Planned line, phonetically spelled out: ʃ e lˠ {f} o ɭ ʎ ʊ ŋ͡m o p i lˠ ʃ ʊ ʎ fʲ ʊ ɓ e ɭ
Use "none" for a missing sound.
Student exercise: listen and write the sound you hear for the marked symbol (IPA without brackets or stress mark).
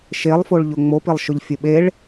f